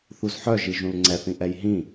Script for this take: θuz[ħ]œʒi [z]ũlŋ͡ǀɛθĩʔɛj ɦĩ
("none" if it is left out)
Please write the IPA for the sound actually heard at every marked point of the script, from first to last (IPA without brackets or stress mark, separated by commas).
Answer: ħ, ʒ